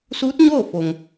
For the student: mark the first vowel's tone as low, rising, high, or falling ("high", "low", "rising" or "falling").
rising